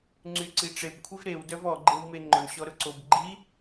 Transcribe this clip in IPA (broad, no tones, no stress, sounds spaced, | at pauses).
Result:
ŋ͡ǀ y ǀ i ʈ͡ʂ e b kʷʰ i v ɾ e w d œ v ɔ ɡ͡ǃ e w m e ŋ͡ǃ ʊ ɳ ɕ ɔ ɾ ʊ ǀ o b ɡ͡ǃ i